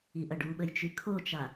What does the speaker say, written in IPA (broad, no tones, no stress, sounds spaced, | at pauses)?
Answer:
i ʔ ɐ ɖ u ɓ ə j t͡ʃ y kʰ o t͡ʃ a